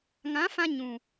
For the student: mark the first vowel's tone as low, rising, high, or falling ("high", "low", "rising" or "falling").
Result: rising